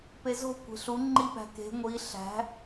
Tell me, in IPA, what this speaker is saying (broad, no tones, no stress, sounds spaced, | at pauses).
p e z o̤ kʷ e̤ ɬ u ŋ͡ǃ i p æ̤ k e̤ ŋʷ i ɬ æ̤